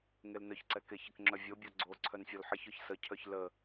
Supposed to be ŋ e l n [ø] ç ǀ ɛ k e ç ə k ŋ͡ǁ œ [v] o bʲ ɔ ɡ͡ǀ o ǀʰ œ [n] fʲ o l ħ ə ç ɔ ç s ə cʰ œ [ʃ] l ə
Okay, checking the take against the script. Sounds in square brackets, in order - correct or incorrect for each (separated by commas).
incorrect, incorrect, correct, incorrect